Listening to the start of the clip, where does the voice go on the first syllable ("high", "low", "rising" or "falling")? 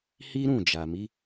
high